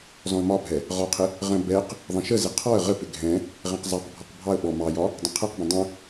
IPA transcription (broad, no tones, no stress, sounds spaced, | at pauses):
z ɔ̃ ə̯ m ɒ bʱ ɛ | ʁ ɒ qʰ ɪ | ʁ ə̃ b ɛ q | ðˤ ə̃ ʃ ə z ɪ qʰ ɔ ə̯ ʁ ə p ɪ ɡʱ ɛ̃ | ʁ ɛ̃ q zˤ ɑ q bʱ ɔ q bʱ ɑ ə̯ ɓ ɔ m ɑ j ɒ | dˤ ə̃ qʰ ɛ q b ə̃ dˤ ə̃